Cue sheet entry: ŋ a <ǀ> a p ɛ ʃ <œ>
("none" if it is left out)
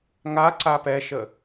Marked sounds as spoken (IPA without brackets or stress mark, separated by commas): ǀ, ə